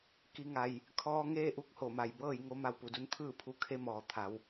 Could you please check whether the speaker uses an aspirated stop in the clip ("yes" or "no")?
yes